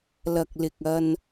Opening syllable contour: low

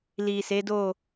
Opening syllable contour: low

